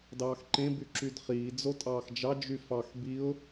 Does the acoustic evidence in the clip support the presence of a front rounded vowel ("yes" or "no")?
yes